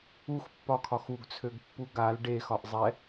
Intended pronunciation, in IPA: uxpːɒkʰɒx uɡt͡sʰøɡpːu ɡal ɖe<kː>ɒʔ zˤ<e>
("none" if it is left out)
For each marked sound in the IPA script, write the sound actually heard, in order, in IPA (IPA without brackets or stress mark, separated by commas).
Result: x, ɛ